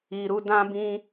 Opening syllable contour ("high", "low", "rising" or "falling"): low